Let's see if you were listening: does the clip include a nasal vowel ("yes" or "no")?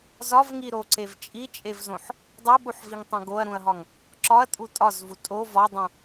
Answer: yes